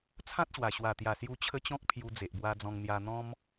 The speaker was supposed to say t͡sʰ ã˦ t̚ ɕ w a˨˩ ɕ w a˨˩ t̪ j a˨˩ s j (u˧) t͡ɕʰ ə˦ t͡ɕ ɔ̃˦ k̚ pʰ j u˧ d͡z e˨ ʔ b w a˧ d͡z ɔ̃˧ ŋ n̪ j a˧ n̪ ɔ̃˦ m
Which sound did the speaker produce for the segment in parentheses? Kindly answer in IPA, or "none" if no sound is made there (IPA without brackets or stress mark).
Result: u˧